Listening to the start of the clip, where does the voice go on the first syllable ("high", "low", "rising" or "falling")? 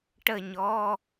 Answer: falling